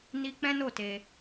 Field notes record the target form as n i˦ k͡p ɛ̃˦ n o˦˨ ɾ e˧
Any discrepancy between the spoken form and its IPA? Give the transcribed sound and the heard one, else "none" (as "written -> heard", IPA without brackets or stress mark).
ɾ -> t